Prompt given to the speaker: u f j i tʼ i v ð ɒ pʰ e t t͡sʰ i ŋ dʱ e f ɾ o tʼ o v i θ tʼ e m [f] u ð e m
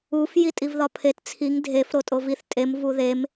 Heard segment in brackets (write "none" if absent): v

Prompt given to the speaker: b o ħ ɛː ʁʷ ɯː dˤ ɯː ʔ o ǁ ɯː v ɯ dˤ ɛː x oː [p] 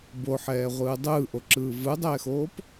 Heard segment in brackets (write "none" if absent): p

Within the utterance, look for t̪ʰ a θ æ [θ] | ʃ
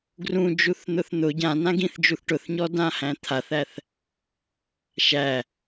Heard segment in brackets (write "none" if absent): θ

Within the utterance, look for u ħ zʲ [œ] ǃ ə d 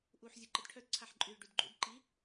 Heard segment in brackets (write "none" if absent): œ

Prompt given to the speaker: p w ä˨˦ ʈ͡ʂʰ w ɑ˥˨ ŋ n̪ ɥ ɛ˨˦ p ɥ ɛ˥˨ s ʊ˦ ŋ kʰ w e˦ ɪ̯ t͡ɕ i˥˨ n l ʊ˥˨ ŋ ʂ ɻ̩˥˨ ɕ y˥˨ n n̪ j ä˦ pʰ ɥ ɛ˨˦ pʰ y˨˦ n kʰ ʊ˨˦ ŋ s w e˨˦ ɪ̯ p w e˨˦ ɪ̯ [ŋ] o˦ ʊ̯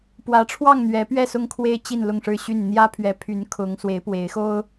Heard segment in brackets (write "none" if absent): x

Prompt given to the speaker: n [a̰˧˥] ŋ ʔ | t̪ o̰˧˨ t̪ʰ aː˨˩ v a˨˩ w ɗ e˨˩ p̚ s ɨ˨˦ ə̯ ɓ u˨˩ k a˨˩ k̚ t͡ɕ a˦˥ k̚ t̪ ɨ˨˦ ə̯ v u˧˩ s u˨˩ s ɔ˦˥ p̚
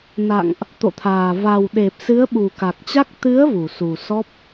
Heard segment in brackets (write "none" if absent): a̰˧˨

